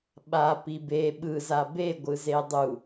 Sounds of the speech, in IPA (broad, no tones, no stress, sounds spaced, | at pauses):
ɓ a p i b e ɓ ɯ z a b e ɡʷ ɯ z e dˤ u